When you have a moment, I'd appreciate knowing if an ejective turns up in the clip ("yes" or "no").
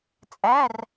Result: yes